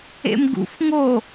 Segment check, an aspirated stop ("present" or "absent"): absent